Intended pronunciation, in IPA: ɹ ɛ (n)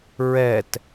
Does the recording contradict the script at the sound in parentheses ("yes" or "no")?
yes